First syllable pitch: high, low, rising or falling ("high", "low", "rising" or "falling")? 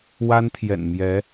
high